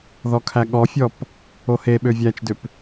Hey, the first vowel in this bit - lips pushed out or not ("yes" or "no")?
yes